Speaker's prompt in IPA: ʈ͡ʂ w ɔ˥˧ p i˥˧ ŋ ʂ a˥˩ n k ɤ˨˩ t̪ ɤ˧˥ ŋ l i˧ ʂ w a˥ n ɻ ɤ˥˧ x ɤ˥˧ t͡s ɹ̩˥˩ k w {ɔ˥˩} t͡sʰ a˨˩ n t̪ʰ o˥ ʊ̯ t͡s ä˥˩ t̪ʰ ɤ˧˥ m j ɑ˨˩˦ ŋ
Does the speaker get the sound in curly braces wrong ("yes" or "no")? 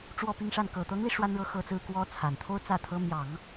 yes